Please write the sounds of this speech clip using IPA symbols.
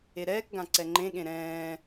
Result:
eɾɛːkɡã ǀɛŋ͡ǃẽɠẽ ɾɛ̃ː

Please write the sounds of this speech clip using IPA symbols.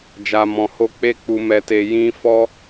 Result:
d͡ʒa˧mɔ̃˧ho˦ k͡pe˦k͡pu˧ mɛ˧te˧ jĩ˦ fɔ˦

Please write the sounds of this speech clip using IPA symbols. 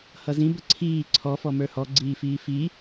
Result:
hʌzĩ bəǀʰiː ǀʰɔ fɔmə˞hɔ ɡ͡ǀiːfiːfi

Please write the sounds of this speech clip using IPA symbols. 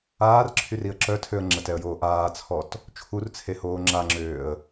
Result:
aːrǁʰyriə̯ ǁœtʰøə̯ ŋ͡ǁətɛə̯joː ʔaːt͡sʰɔt | t͡ʃʰurt͡sʰehoː ŋ͡ǁaŋ͡ǁøːə̯

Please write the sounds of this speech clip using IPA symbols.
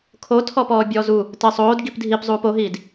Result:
kʰotʰɔpɔːbʲɔː zu | tɘsˤoːd ɡipdʱipzˤuːp oɦiːd

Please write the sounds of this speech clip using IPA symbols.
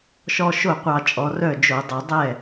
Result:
ʃɔ˧ ʃo˥˩qʷɑ˧ t͡ʃʼɔ˩˧rœ˥˩d͡ʒo˧˩˧dˤɤ˧˩˧ dˤɛ˥˩

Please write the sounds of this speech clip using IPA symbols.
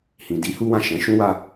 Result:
hĩ˨di˨˦ hu˦wã˦˨ ʃɛ̃˨˦ʃũ˦ wa˧

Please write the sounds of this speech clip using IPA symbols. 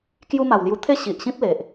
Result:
kju˦ma˨˩wlju˧ t̪ʰe˥˧ɕi˨ʔɕĩ˦p̚ le˨ʔ

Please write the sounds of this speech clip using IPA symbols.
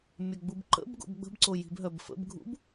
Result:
mʲœɡ͡bubǃə̰bɡo̰b ɡ͡bə̤bǀo ji̤bɦœbfə̰bɡʱṵb

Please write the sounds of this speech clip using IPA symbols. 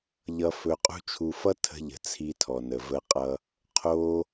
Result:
ʎʌ˧fɵ˧qʼṳ˦t͡ʃʰu˧ fʌ˦tʰə̤˧ʎə̤˨ t͡sʰi˧tʰɔ˨nə˨ və˧qʼʌ˧ | qʰo˧

